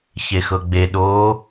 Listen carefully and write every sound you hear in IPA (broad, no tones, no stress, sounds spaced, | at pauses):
ç e x ɤ ɡ͡b e ɗ oː